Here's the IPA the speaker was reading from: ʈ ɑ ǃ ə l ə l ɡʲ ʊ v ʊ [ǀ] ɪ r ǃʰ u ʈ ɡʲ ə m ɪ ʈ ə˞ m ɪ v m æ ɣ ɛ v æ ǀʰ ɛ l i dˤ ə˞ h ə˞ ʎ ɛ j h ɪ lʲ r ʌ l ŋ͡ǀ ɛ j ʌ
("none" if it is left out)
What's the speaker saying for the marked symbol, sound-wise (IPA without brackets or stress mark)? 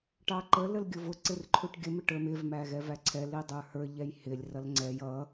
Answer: ǀ